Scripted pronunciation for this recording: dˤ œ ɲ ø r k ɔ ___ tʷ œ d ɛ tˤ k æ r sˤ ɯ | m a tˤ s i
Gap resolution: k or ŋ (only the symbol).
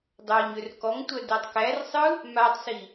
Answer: ŋ